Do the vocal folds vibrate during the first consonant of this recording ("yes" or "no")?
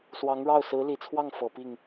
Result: no